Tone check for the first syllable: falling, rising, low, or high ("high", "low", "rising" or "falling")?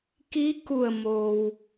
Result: rising